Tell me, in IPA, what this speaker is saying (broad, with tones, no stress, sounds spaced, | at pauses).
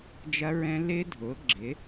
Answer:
d͡ʒ ɐ˦˥ ɹ ɛ̃˦˥ l ɪ˦˥ dʱ ʊ˩˥ ɡ͡ǁ ɪ˩˥